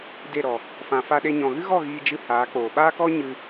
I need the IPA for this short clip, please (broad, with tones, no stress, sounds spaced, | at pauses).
d e˦˨ ɾ ɔ˨ | f ã˧ f a˦ ɗ e˦ ɲ ɔ̃˧ ɣ ɨ˦ ɣ ɔ˦˨ ɣ iː˧ d͡ʒ ɨ˧ h aː˨˦ k͡p oː˨ ɓ aː˦ k ɔ˦ ɲ ɨ˧